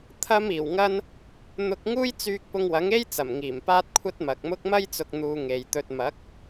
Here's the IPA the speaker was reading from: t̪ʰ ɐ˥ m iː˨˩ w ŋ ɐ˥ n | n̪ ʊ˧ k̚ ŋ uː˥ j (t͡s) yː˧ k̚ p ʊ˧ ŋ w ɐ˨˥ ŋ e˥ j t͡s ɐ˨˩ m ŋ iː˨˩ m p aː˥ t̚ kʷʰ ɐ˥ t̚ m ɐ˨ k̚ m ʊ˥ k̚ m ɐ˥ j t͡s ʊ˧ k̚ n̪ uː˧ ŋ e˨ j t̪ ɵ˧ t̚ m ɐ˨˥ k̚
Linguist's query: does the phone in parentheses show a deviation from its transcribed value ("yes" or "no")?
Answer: no